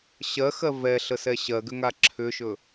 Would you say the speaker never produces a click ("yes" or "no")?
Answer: no